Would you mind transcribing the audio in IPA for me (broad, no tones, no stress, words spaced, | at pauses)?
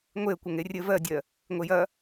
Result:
ŋʷeə̯ kʷɐŋerʲɘ vɜdʲɜ | ŋʷejɐ